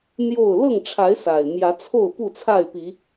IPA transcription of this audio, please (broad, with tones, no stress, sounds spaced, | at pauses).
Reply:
n̪ j o˥˨ ʊ̯ l ɤ˥˨ ŋ ʈ͡ʂʰ a˨˦ ɪ̯ s a˨˩ ɪ̯ m j ä˨˦ t͡sʰ o˥˨ ʊ̯ p u˥˨ t͡sʰ a˥˨ ɪ̯ p i˨˦